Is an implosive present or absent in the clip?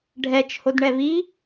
absent